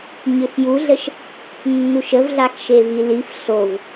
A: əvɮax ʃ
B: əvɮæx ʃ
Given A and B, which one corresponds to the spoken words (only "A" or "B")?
A